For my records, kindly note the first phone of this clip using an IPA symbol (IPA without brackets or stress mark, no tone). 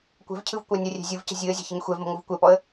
kʷ